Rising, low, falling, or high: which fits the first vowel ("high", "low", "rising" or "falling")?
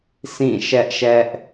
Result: falling